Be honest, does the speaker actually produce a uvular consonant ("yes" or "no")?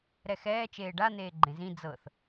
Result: no